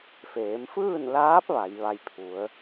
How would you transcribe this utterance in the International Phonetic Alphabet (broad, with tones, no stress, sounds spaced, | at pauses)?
f eː˩˧ m f ɯː˥˨ n l aː˧˥ p̚ ʋ a˩˧ j ʋ a˧ j pʰ u˩˧ ə̯